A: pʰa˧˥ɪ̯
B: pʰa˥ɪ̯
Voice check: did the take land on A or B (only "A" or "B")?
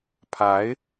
A